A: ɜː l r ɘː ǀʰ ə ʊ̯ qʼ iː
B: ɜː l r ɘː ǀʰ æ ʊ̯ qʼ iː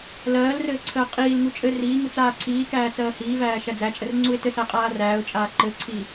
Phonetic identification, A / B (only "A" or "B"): A